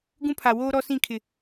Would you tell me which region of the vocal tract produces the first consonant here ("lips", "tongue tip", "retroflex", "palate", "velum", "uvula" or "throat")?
velum